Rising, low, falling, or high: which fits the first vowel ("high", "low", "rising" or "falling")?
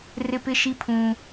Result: high